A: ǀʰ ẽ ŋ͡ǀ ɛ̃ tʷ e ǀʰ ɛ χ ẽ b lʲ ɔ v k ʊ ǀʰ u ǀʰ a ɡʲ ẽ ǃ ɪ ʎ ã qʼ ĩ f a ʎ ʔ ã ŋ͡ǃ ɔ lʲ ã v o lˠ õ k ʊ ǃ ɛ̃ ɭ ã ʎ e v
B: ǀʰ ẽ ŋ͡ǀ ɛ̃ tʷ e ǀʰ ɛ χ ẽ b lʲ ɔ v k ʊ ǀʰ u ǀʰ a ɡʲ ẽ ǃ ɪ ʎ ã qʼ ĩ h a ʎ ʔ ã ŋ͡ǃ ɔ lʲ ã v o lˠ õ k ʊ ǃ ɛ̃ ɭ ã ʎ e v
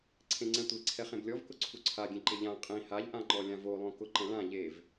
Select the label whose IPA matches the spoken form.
B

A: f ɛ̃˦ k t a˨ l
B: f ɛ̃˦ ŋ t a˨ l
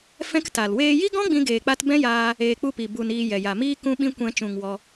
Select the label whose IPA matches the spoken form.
A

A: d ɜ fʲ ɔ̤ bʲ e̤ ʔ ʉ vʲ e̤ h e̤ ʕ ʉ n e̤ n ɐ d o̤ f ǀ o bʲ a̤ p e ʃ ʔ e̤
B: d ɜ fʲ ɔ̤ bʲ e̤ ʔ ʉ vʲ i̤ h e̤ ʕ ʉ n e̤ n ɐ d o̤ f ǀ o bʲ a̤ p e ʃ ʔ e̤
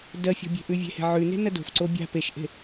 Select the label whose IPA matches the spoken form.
A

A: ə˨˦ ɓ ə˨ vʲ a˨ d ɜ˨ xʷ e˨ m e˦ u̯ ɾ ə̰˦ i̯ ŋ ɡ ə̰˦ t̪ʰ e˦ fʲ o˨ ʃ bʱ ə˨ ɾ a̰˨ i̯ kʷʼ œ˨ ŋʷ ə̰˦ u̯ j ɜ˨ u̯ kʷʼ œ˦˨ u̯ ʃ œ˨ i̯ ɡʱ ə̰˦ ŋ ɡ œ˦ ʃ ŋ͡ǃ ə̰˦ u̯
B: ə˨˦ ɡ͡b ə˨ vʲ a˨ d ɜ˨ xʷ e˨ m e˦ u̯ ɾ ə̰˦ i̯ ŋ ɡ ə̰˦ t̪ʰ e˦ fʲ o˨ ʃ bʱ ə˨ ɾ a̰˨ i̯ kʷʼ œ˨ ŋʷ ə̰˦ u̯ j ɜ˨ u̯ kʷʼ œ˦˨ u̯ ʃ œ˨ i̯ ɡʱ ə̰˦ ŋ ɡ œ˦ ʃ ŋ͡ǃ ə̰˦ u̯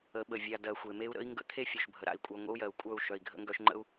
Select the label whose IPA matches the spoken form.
A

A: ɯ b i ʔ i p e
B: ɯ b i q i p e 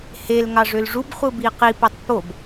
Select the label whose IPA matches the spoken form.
B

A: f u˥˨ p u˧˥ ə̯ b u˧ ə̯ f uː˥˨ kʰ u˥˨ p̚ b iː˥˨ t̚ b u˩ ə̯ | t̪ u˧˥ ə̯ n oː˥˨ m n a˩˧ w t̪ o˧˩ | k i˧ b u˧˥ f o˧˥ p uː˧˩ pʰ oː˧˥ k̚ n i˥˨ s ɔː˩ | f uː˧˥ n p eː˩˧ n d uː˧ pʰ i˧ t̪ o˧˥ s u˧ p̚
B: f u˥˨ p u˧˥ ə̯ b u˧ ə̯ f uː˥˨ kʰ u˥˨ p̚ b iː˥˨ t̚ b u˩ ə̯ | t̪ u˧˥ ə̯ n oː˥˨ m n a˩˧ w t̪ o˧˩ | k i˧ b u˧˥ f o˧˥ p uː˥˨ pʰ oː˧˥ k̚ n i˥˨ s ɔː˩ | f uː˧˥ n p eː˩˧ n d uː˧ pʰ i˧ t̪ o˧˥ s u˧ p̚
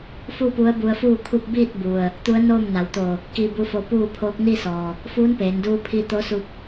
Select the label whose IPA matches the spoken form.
B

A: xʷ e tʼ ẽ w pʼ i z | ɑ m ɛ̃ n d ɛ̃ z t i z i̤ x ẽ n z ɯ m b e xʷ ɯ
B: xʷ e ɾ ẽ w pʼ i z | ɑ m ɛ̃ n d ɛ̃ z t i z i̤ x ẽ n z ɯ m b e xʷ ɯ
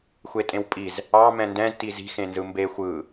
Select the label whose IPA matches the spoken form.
A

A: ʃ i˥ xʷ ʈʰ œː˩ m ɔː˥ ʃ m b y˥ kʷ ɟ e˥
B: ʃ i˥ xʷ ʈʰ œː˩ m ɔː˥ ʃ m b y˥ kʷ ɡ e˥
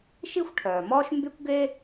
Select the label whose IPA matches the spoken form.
B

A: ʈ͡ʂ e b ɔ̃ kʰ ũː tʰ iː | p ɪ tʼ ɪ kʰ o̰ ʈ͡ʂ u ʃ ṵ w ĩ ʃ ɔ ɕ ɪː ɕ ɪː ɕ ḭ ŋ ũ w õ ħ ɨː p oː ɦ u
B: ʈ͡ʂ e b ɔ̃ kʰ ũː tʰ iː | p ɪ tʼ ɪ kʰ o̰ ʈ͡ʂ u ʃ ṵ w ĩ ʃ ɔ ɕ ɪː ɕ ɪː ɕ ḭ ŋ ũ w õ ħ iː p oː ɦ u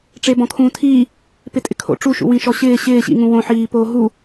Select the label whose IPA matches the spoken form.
B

